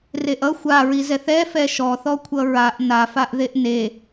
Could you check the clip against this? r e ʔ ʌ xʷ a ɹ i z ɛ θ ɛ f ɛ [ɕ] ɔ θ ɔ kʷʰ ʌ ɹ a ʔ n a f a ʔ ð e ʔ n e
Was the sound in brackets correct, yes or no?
no